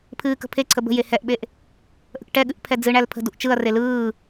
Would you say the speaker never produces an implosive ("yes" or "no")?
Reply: no